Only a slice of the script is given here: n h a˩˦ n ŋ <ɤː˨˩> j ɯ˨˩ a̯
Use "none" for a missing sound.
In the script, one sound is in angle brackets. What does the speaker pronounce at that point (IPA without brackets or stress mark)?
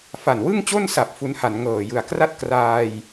ɤː˨˩